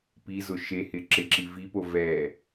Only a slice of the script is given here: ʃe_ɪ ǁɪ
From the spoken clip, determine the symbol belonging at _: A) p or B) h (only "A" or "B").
B